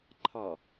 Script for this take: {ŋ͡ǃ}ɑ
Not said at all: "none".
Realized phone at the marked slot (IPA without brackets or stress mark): ǃʰ